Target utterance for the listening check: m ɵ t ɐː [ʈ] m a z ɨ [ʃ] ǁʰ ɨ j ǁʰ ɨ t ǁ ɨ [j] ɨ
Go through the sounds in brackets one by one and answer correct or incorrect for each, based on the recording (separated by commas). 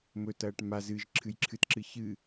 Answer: correct, incorrect, incorrect